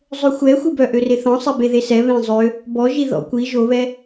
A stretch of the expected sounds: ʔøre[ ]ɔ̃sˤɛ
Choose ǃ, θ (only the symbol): θ